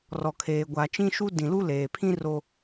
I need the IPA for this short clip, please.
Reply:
r ɔ˨ kʰ eː˨ ɡʷ a˨ t͡ʃ ĩ˦ ʃ u˦ d ĩ˨ l u˦ l eː˨ pʰ ĩ˦ r o˦

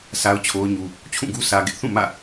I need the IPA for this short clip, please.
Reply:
s a˦ ʊ̯ t͡ɕʰ o˦ ʊ̯ ɲ u˦ | t͡ɕʰ ũ˦˨ ɡ u˦ s ä˦ ɡ ɪ˦ ʔ θ ũ˦˨ m ä̰˦˨

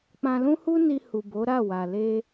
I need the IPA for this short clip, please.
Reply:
k͡p ã˧ l ũ˦ h u˦ n i˧ h u˨ b o˨˦ ɾ a˦˨ w a˨ l e˧

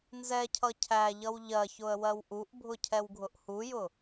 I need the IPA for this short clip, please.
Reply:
n z ɛ cʰ ʌ cʰ æ ʎ ʌ w ʎ ɜ ç ʊ ə̯ w ɜ w ʔ u ʔ bʱ ʊ cʰ ɛ w ɡʱ ʊ ʔ h u j ʊ

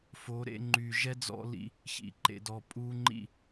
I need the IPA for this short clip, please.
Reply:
f o˨˦ ɾ ḛ˧ ŋ͡ǃ y˨ ʒ ɛ˦ d͡z ɔ̰˧ l ḭ˧ | ç ḭ˨ ǃ ḛ˨ d ɔ˨ pʼ u˧ ŋ͡ǃ ḭ˦˨

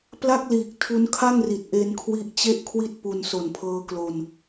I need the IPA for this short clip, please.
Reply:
p l a˥˩ k̚ l iː˨˩ k̚ tʰ u˦˥ n kʰ a˥˩ ŋ r i˨˩ t̚ ʔ e˧ n kʰ w i˦˥ ʔ t͡ɕ e˥˩ ʔ kʰ w i˥˩ t̚ p u˧ n s o˨˩ n pʰ ɤː˧ k l o˧ n

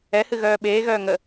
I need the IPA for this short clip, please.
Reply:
ɛ h ɨ ɣ œː ɓ eː ɣ œː ŋ ə

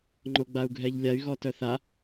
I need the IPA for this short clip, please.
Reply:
ŋ͡ǃ o ɡ͡b a u̯ ɡʱ ɛ ʎ lʲ a y̯ ɣ ɔ t œ θ a

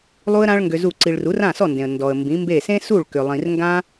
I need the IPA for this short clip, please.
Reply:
lˠ u˥ ə̯ ɾ ã˥ ɭ ŋ ɡ ʏ˧ z u˥˩ ǀ i˧ ɭ r u˩˥ r ã˥˩ s ɔ˥˩ n d ẽ˩ ə̯ n d ɔ˩ ə̯ m b ĩ˩˥ m b e˥˩ s ẽ˥ s u˥˩ ɭ k ʏ˩ lˠ ĩ˩ r ŋ ɡ ã˥

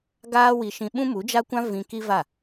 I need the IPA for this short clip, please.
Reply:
ɡ aː˦ w i˧ ʃ ĩ˧ ɓ ũ˦ m u˨˦ d͡ʒ a˦ kʷ ã˦ v ĩ˧ k i˦ v a˦˨

